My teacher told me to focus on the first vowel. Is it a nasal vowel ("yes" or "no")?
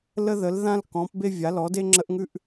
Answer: no